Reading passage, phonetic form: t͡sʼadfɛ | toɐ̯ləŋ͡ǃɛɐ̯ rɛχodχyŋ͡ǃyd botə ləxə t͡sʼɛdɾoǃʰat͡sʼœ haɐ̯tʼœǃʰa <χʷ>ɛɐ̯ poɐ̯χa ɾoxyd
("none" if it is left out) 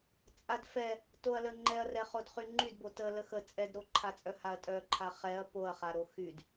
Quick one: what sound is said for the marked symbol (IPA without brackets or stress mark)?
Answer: χ